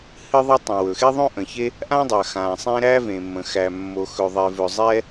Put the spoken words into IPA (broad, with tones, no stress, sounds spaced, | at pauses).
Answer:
h ɨ˥ ðˤ e˥ tˤ õ˩ w ɵ˩ x e˥ ðˤ õ˥ ʔ ə̃˩ ç e˥ | ʔ ã˥ dˤ a˩ x ã˩ sˤ ẽ˥ ɾ æ˥ v ẽ˩ mː ə̃˩ x æ˩ mː o˩ x ɵ˩ ðˤ e˩ v ɵ˩ zˤ ɛ˥